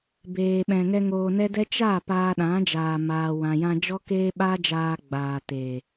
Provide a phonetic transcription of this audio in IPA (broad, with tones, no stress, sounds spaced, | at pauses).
b eː˨ ɓ ɛ̃˨ ŋ ɛ˧ ŋ oː˧ n ɛ˦ d ɛ˦ t͡ʃ a˦˨ p aː˧ ɗ ã˨˦ d͡ʒ aː˨ m aː˨ w ã˨ j ã˧ d͡ʒ ɔ˦ k eː˦ ɓ aː˦ d͡ʒ aː˧ ɡ͡b aː˨ t eː˨